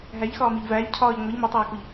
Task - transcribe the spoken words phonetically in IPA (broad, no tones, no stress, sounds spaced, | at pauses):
ɦ æ ʎ x ɒː m i ʎ v æː ʎ cʰ ɒː ʎ ŋʷ e ʎ m o tˤ æː k u ʎ